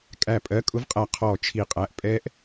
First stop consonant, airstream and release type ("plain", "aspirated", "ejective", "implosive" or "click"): ejective